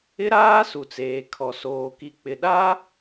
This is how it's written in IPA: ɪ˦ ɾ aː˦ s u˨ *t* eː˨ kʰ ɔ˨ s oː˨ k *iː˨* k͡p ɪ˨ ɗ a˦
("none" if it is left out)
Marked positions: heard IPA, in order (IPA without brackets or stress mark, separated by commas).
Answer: t͡s, i˨